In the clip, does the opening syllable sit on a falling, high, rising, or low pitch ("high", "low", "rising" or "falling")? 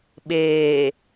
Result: low